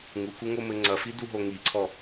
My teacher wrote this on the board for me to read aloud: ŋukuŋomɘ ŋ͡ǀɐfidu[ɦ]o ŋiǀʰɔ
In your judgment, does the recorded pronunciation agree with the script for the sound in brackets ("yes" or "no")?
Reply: yes